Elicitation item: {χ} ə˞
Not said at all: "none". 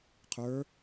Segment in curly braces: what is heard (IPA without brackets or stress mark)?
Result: qʰ